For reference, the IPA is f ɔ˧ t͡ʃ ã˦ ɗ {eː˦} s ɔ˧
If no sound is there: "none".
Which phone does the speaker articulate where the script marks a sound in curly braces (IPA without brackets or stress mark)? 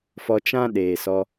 eː˨